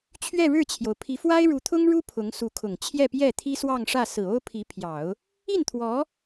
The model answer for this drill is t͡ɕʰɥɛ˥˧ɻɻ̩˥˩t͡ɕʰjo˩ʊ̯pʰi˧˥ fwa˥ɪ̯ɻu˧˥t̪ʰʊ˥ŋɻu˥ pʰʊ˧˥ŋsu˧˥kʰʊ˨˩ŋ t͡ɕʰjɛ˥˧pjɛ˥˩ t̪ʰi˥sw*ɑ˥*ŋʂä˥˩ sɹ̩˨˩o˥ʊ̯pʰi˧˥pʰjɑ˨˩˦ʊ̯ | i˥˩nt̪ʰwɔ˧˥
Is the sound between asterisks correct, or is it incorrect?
incorrect: ɑ˥˧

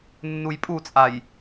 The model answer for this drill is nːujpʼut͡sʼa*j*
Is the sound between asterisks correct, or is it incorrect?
correct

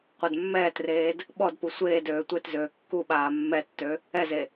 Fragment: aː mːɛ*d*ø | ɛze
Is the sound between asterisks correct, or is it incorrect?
incorrect: tː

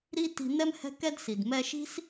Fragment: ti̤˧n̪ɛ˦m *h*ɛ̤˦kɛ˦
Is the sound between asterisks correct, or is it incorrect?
correct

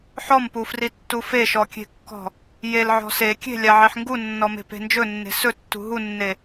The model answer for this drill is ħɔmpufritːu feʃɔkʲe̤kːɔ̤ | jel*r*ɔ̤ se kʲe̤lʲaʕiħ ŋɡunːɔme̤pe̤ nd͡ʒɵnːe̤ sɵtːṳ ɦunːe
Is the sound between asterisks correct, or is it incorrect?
incorrect: ʕ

